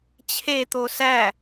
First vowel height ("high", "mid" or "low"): mid